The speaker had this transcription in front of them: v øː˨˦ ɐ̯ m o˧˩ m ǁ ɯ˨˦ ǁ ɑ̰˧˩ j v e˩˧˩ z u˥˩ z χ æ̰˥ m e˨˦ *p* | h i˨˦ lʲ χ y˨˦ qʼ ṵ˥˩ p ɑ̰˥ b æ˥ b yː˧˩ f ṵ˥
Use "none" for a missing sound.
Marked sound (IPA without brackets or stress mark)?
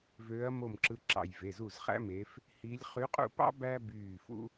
f